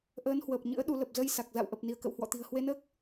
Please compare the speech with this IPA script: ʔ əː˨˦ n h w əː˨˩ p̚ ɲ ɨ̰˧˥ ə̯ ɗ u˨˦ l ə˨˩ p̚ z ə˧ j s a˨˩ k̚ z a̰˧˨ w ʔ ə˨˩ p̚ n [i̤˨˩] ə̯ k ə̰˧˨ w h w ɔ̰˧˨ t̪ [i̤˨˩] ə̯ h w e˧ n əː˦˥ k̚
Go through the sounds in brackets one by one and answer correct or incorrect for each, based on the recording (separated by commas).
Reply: incorrect, correct